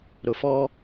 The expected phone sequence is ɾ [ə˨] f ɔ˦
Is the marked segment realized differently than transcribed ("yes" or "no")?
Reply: yes